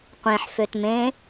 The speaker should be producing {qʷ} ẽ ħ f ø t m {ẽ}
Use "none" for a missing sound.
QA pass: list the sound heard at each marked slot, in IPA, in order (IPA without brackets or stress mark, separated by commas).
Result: qʷ, ẽ